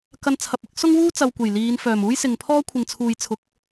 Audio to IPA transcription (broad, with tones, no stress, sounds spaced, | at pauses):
k ɐ˧ n t͡sʰ ɐ˨ p̚ ɪ˥ k̚ s ʊ˥ ŋ w uː˥ t͡s ɐ˨ w kʷ e˨˩ j l iː˨˧ n f œː˨˩ m uː˥ j s ɪ˨ ŋ pʰ ɔː˥ kʷʰ ɪ˨ ŋ t͡sʰ uː˨ j t͡sʰ ʊ˨˥ k̚